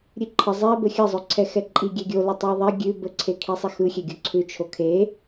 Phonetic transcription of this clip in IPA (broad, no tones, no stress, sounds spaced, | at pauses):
ɾʲ ʉ ǃʰ ə zˤ ɛ b ə xʲ ə zˤ ø ǀʰ ɛ x ɛ ǃʼ i ɡʲ ɛ ɡʲ o l ə tˤ u ðˤ ɛ ɡʲ ʉ b ə ǀʰ e kʰ i sˤ e x ɯ xʲ ɛ ɡʲ o ǀʰ ʉ t͡ʃʰ o kʰ e